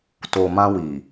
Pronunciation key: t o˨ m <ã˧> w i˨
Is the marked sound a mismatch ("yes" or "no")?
no